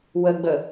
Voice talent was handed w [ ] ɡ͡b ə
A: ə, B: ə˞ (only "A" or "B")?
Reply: A